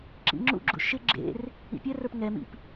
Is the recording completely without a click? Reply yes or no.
no